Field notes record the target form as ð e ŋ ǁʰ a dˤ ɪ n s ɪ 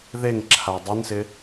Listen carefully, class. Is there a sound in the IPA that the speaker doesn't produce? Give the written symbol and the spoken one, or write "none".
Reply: none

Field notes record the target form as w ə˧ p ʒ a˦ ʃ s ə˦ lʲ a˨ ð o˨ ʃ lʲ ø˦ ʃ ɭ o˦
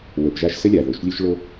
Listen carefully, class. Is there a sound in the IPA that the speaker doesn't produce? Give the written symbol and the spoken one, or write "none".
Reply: none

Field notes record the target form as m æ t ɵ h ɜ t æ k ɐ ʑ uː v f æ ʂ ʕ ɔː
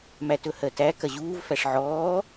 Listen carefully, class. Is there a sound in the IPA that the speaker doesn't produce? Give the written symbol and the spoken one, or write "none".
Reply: none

